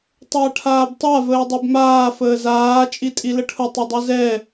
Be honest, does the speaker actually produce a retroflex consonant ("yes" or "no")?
yes